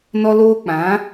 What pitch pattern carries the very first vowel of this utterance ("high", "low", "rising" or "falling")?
high